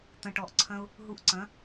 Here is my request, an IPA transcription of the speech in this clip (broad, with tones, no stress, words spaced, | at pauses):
t̪ɐ̃˨ʈɔ˨ʔǀʰɐ̃˧ʊ̯ | ɦu˧ʔǀɐ̃˨˦